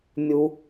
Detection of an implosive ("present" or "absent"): absent